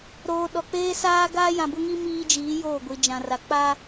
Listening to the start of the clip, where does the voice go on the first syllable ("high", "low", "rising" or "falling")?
low